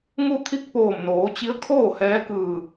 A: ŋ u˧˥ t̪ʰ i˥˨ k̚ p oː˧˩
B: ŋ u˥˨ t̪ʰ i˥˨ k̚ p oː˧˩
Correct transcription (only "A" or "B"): B